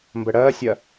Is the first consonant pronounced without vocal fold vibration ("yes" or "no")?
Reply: no